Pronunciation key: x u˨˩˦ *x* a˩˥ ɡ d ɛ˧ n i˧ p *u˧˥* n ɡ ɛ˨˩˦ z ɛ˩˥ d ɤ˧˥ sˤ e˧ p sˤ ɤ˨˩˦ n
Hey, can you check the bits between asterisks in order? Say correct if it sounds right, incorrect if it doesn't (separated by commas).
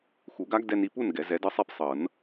incorrect, incorrect